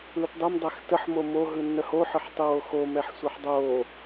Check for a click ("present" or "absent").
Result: absent